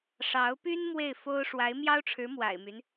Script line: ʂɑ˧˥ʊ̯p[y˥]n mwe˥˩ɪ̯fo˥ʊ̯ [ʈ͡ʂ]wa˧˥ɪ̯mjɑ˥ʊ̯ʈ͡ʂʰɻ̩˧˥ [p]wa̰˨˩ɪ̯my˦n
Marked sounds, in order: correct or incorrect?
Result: correct, incorrect, incorrect

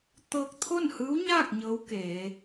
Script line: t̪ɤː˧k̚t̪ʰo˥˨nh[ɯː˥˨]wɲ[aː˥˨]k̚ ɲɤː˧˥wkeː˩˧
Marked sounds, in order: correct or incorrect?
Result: incorrect, correct

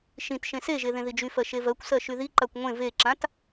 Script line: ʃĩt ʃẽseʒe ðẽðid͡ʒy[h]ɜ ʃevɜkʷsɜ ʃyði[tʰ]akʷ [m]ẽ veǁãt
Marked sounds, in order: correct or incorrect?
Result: incorrect, incorrect, incorrect

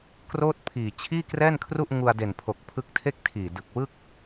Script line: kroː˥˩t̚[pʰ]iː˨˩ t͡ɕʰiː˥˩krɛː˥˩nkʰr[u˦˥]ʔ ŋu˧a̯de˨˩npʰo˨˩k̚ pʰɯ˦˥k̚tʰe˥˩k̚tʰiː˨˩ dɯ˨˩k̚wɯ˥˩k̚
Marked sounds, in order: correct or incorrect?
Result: correct, incorrect

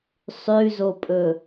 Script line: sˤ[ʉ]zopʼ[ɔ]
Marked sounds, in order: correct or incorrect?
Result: correct, incorrect

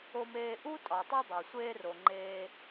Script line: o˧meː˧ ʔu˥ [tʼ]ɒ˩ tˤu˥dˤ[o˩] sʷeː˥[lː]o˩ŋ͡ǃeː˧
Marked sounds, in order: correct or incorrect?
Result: correct, correct, incorrect

